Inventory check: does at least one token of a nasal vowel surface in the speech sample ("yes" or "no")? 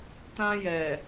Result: yes